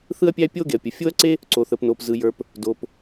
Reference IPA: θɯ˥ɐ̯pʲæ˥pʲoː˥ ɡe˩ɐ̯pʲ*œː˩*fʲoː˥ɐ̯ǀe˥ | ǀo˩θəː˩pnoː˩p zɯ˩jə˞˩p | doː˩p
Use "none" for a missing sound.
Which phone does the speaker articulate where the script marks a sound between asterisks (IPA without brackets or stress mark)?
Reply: əː˩